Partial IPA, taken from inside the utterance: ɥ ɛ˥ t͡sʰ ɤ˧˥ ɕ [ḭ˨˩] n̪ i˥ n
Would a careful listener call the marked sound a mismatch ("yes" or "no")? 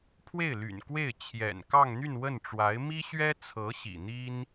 no